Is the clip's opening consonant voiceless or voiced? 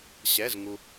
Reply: voiceless